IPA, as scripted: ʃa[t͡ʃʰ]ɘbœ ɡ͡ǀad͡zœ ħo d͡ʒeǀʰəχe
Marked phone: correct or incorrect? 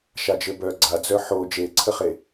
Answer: incorrect